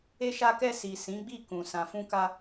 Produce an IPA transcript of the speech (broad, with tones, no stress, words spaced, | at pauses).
e˧ʃa˧kɛ˧ si˨ sĩ˨˦ɡ͡bi˦˨kũ˨ sã˨fũ˧ka˧